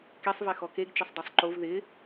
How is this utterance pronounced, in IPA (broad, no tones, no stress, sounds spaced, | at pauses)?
k e sˤ v ɛ x ɔ k e ɡ t͡ʃ ɪ sˤ dˤ e sˤ ǃ o v ð ɪ